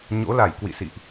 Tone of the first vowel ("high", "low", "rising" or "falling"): rising